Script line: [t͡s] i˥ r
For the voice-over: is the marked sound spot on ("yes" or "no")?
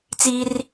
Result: yes